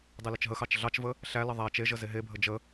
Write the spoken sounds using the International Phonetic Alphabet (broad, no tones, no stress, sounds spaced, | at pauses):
dˤ e l ə t͡ʃ ɦ ə x ɑ t͡ʃ ɮ ɑ t͡ʃ v ə | ɬ æ l ə ðˤ æ t͡ʃ e ʒ ə z e ɦ e bʱ ə d͡ʒ ə